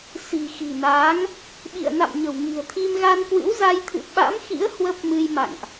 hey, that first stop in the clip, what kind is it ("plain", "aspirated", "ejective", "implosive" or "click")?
implosive